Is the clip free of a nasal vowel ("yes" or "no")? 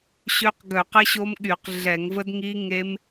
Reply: yes